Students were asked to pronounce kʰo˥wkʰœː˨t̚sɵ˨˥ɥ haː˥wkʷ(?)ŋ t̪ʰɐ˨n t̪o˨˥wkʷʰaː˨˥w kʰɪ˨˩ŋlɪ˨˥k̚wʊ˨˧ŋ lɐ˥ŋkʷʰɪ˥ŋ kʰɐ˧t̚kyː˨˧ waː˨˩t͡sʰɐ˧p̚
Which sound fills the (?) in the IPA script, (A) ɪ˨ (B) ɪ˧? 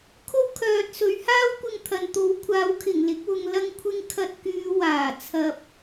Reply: B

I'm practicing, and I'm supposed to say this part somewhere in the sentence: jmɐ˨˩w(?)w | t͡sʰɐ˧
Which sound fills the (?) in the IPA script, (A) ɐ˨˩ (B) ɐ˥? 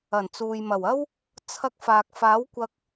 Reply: B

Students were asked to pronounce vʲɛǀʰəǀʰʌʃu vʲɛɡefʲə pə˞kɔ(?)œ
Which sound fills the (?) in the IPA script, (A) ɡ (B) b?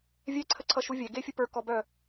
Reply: B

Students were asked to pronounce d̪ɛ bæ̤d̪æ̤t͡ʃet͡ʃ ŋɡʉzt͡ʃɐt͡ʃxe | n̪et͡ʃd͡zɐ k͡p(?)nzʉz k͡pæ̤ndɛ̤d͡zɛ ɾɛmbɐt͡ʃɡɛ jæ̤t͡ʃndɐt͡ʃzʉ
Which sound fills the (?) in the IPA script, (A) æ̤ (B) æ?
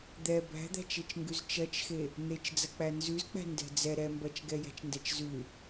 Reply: B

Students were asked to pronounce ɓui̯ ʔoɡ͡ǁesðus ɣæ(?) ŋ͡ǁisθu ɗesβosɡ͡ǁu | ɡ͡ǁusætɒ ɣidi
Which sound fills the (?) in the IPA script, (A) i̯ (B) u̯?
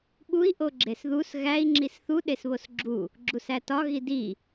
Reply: A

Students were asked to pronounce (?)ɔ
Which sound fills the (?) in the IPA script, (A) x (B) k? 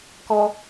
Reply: B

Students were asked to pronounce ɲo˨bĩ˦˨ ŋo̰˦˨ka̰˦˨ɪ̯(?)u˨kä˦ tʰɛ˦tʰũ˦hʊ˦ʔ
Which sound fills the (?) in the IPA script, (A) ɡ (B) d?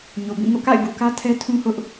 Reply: A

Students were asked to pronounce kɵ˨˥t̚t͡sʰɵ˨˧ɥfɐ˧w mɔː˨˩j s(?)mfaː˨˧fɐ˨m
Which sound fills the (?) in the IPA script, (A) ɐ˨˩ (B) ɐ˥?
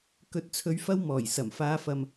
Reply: A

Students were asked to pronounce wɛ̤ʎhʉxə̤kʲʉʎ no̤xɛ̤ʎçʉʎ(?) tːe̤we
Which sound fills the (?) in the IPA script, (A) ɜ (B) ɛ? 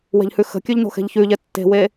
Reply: B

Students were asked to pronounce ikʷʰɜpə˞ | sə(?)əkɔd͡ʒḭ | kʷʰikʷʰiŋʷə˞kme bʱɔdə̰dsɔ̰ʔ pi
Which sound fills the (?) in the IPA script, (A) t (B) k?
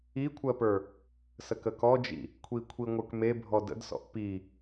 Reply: B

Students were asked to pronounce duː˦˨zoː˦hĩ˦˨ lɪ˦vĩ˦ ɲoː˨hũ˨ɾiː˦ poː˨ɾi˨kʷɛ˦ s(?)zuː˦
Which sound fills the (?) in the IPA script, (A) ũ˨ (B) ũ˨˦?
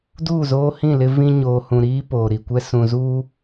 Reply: A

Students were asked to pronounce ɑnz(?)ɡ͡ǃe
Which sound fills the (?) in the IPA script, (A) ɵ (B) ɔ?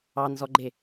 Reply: B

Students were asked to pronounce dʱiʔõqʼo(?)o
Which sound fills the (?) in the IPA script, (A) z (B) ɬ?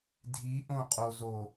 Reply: A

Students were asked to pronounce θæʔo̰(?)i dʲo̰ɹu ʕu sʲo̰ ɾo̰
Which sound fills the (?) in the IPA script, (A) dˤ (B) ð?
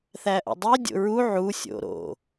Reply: A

